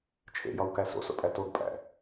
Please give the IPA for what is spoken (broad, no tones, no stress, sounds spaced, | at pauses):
t͡ʃʰ ḛ j ɒ w k æ s o̰ s o̰ pʼ æ t o ɡ pʼ æ̰